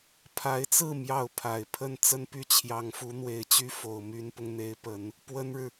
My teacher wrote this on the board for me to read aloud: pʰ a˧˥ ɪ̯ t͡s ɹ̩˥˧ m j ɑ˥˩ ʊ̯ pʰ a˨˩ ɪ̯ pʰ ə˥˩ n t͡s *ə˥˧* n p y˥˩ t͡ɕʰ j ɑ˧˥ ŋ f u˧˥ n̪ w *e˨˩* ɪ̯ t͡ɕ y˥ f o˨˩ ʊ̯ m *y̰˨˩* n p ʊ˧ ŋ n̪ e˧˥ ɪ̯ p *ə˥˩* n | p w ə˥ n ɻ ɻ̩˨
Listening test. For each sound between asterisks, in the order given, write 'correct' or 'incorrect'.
incorrect, correct, incorrect, incorrect

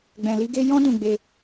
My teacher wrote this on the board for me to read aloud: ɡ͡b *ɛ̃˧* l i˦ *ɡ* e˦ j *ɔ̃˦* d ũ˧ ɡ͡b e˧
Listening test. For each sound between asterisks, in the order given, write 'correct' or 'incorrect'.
correct, correct, correct

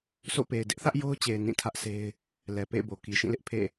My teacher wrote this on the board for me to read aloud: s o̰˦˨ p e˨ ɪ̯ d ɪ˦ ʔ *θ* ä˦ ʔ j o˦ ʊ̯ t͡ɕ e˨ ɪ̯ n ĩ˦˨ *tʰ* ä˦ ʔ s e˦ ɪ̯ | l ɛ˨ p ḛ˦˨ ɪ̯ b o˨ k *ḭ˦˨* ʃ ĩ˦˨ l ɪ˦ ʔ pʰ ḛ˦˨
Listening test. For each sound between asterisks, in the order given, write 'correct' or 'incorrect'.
correct, correct, incorrect

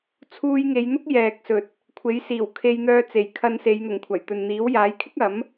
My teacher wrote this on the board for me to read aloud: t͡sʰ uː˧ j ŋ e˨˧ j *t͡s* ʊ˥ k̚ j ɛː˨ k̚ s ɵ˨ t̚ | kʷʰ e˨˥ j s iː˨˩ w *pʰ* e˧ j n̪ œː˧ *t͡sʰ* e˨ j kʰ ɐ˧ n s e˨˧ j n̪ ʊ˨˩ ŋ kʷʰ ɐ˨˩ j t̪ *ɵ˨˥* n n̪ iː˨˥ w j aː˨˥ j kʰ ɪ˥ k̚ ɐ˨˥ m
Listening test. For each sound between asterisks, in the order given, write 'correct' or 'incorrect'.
incorrect, incorrect, incorrect, incorrect

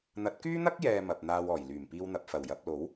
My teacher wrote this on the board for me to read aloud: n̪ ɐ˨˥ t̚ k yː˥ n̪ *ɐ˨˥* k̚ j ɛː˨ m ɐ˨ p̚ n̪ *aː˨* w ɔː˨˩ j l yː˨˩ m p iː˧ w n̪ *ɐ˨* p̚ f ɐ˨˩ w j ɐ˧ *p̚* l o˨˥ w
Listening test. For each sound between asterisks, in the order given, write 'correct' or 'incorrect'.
incorrect, correct, correct, correct

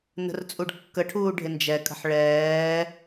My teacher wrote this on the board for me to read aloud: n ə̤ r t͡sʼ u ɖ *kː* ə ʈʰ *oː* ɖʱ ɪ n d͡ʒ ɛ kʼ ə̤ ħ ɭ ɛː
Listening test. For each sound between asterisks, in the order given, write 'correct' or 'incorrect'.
correct, incorrect

